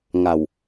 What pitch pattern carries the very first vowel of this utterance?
low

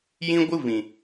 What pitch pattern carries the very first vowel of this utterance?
high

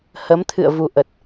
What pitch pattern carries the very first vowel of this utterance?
rising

